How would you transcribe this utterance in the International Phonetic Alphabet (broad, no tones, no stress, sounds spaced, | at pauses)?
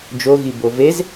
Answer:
d͡ʒ o ɣ i b o v e z